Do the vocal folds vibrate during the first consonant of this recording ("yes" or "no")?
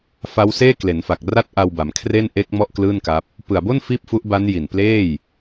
no